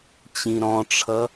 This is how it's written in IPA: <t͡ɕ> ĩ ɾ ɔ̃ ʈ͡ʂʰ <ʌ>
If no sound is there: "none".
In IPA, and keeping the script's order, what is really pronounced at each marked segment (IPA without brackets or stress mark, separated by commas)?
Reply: t͡ɕ, ʌ